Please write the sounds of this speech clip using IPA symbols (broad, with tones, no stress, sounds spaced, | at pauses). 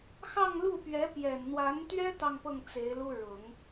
x ɑ˥˧ ŋ l u˥˩ p ɥ ɛ˧˥ p j ɛ˨˩ n n̪ w a˧˥ n t̪ ɥ ɛ˥ t̪ ɑ˥˧ ŋ p ɤ˥˩ ŋ t͡s e˧˥ ɪ̯ l u˥ ɻ ʊ˨˩˦ ŋ